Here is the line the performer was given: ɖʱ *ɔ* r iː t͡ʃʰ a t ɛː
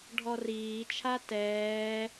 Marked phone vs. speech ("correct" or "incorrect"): correct